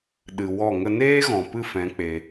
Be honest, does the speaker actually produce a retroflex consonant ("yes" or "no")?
no